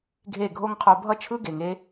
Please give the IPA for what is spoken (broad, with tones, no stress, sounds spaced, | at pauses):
ɡʱ e˦˨ ɡʱ o˦ ŋ qʰ o˧ bʱ ʌ˦ t͡ʃʰ ɯ˦ ɡ e˨ ŋ e˧